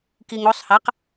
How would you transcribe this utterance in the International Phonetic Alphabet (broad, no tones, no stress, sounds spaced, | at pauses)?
k i ŋ o sˤ h a q